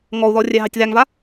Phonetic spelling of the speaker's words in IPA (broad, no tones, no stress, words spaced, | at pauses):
ŋɔu̯ðɔ rʲæɦɑtʲðæŋva